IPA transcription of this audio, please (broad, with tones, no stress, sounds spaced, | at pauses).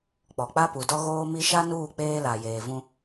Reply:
k͡p ɔ˨ k͡p a˦ p u˨ d ɔ˦ ɣ oː˦ m i˦ ʃ a˦ n uː˦˨ k͡p eː˦ l a˨ j eː˨ v ũ˦